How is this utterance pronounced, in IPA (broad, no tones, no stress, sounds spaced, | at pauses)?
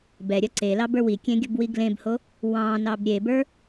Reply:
b ɛ ɾʲ ɐ ǀ e l ɑ b ə˞ w i kʲ ẽ ɡʲ ʊ b w i ɡ l ẽ b h o | w ɑ̃ n ɑ b ɾʲ e b ə˞